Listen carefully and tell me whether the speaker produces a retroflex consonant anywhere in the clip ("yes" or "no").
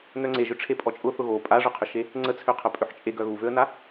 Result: yes